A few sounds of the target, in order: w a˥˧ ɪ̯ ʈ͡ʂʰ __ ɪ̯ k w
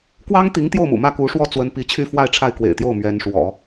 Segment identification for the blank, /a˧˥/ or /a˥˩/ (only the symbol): a˥˩